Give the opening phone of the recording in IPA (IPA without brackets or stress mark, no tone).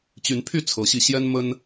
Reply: t͡ɕ